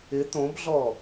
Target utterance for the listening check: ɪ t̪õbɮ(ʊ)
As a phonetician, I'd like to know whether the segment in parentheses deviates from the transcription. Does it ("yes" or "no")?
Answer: yes